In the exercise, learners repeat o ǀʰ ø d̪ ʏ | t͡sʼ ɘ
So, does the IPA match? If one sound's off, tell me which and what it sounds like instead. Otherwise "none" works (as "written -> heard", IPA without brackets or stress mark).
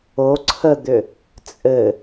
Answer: ø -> ə